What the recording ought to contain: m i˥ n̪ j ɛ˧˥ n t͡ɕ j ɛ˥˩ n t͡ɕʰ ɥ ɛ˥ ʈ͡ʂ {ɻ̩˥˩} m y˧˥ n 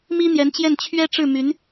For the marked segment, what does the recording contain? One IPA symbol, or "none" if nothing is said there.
ɻ̩˥˩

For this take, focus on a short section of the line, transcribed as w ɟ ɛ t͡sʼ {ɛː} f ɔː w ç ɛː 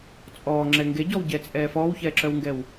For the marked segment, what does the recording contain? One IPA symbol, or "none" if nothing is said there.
ɛː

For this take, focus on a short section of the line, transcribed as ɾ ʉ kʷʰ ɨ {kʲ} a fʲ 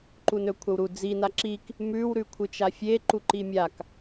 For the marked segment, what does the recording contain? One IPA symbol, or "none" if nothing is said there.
t͡ʃ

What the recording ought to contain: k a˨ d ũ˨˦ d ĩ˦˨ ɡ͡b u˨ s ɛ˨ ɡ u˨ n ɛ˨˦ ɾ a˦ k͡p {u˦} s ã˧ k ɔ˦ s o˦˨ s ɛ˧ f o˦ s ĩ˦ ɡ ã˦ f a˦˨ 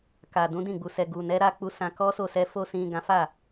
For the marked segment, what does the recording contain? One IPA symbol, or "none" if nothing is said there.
u˧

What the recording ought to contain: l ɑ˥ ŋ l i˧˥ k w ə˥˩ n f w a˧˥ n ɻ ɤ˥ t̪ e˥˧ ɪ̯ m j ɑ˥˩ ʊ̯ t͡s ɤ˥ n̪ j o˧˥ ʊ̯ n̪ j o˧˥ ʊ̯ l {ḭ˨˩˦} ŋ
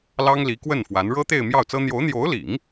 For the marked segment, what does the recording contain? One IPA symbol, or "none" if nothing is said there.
ḭ˨˩˦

